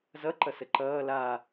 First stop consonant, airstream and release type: click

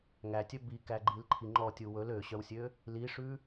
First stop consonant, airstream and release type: plain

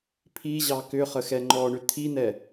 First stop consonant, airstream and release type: aspirated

